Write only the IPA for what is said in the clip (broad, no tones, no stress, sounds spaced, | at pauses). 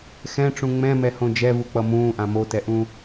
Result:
x ɛ̃ ʈ͡ʂ ũ ŋ͡m ɛ̃ m ɛ h õ d͡ʒ ɛ v u k͡p ʌ m ũː ʔ ã m o t ɛ ʔ ũ